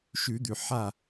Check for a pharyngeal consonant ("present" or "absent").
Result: present